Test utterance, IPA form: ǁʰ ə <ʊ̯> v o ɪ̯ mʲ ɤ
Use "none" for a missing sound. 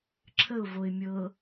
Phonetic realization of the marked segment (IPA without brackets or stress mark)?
ʊ̯